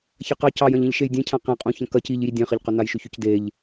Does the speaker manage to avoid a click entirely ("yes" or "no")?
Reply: yes